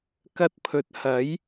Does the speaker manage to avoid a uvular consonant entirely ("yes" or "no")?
yes